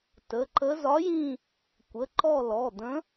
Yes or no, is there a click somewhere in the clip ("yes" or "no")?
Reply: yes